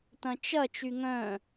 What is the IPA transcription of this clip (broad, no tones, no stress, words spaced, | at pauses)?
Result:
tɐ̃t͡ʃɐ t͡ʃyŋœ̃